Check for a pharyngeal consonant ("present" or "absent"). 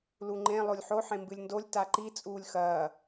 present